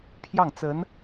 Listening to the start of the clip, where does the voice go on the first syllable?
falling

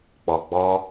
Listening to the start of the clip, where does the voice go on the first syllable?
low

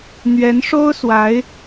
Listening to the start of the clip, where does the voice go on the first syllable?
rising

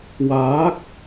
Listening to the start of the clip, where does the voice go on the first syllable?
rising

